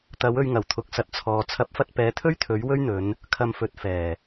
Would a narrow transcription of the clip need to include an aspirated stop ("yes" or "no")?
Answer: yes